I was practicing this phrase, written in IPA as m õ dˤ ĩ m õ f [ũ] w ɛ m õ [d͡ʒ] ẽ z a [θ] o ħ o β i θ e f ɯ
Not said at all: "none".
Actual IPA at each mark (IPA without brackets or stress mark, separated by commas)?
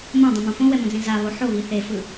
õ, d͡z, β